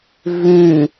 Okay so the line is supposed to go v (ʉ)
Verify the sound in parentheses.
correct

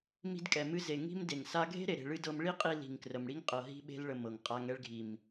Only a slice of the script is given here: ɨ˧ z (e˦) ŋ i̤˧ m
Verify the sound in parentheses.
incorrect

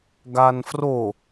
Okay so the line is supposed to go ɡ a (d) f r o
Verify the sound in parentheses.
incorrect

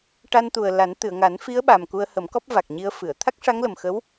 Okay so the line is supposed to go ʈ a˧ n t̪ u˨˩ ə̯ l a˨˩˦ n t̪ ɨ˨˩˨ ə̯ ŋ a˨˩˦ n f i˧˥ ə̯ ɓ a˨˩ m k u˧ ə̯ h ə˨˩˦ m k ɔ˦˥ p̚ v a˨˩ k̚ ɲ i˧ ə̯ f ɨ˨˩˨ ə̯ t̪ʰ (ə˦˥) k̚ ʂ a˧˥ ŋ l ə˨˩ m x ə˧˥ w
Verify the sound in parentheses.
incorrect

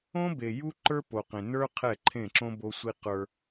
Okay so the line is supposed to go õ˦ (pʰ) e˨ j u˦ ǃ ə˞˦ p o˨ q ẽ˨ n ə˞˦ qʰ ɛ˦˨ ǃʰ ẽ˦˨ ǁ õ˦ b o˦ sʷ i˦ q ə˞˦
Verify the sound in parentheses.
incorrect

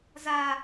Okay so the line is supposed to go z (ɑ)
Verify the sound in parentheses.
incorrect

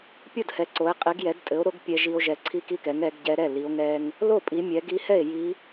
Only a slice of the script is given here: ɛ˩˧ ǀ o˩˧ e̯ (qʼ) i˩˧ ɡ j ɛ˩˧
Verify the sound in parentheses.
correct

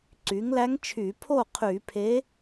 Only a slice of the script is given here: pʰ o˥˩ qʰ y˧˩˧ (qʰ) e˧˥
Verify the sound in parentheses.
incorrect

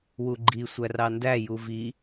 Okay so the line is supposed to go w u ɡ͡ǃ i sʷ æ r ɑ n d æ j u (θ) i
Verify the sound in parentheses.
incorrect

